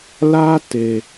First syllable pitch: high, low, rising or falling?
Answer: high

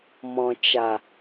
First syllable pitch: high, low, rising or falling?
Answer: low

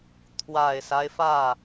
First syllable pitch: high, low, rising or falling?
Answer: low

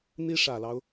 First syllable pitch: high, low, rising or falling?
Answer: high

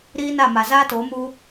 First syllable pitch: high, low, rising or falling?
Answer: high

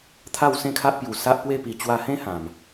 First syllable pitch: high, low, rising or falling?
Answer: falling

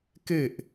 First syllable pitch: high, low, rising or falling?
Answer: falling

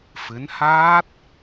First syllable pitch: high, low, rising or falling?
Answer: rising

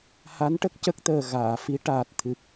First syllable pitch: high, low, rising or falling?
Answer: rising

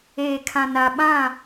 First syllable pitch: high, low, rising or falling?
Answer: low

